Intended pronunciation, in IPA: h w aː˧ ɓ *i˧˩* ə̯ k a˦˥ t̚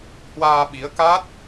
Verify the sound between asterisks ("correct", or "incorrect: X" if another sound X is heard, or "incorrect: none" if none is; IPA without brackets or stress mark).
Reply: incorrect: i˨˦